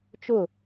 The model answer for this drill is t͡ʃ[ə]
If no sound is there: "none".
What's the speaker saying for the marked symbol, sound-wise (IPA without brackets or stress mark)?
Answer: ʊ